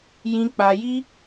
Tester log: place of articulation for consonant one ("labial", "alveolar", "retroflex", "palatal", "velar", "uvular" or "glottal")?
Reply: palatal